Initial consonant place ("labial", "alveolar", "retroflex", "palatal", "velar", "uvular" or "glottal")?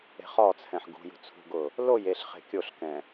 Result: uvular